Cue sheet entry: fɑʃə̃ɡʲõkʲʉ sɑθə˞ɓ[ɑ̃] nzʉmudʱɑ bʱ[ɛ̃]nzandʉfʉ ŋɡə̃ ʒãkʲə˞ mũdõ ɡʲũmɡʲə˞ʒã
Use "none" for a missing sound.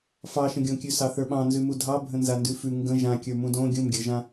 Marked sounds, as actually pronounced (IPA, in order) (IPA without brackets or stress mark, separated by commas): ɑ̃, ə̃